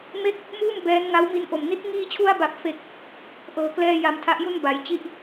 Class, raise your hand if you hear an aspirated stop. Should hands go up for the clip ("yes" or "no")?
yes